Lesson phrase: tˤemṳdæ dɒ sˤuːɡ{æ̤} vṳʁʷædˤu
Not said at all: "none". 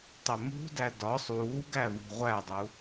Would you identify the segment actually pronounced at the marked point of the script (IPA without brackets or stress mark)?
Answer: æ